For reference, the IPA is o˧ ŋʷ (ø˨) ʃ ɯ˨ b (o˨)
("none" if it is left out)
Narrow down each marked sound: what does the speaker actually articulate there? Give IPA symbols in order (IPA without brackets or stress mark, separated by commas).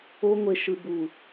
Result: e˨, u˨